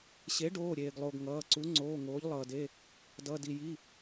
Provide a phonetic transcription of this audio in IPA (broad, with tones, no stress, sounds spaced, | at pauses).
ɕ e˩˥ ɖ oː˩˧˩ ɾʲ eː˩ ɡ lˠ o˩ ɡ ŋ ʌː˩˧˩ ǀ u˩˥ ŋ͡ǀ oː˩˧˩ ŋ oː˩˥ ʎ lˠ ʌː˩ d e˩˧˩ | d ʌ˩˧˩ d i˩ j i˩˧˩